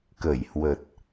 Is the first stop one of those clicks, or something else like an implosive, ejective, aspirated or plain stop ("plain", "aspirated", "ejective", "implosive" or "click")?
plain